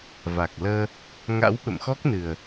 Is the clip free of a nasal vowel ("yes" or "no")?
yes